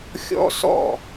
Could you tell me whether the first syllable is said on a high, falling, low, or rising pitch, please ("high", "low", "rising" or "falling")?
high